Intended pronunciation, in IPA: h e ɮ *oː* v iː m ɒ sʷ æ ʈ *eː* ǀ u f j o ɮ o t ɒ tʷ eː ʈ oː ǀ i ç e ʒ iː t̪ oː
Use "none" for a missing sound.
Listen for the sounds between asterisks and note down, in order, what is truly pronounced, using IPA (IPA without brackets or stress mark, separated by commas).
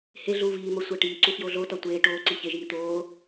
uː, iː